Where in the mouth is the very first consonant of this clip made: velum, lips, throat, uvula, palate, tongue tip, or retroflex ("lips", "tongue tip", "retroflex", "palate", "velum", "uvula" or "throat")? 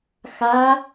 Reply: velum